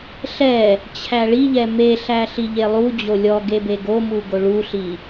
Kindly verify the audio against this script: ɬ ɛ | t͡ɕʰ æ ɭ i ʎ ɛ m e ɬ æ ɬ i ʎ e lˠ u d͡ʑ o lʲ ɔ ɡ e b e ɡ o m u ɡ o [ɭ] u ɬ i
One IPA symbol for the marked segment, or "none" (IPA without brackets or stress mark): ɭ